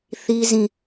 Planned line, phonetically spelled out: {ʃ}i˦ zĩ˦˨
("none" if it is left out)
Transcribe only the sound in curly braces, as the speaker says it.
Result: θ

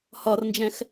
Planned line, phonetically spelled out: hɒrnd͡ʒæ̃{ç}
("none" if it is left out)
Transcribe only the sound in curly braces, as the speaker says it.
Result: x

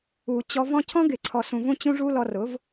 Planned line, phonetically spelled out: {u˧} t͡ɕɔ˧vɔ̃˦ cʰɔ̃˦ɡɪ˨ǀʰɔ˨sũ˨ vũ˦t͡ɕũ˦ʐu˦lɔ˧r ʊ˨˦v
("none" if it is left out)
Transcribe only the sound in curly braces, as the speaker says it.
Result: u˨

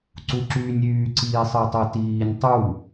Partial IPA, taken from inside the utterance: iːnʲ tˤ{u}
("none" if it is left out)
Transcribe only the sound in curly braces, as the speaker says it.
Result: u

